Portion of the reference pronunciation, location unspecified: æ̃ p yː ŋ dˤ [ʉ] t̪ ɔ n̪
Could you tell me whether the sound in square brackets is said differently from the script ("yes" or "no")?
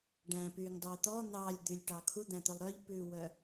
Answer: yes